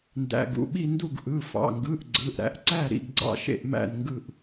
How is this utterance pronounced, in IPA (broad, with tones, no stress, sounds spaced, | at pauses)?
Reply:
n d æ̰˩˧˩ ɡ ṵ˩˧˩ ɓ i˦˨ n d u˦˨ ɡ ʔ ɯ˩˧˩ f ɑ̰˩˧˩ ŋ ɡ ɯ˩˧˩ ʔ ɡ͡ǀ ɯ˩˧˩ ʔ ɾ æ̰˦˨ ʔ ǀ æ˦˨ ɾ ḭ˦˨ ɡ ɡ͡ǀ ɑ̰˦˨ ʃ ḛ˦˨ ʔ m æ̰˦˨ n ŋ ɡ ɯ˦˨ ʔ